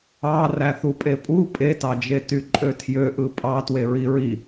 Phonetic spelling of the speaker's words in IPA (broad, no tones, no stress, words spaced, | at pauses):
ɑ ræθupʼepʼu pʼetɑd͡ʒe tyǃʼøtʰjø ʔɯpʼɑ tweɹiɹi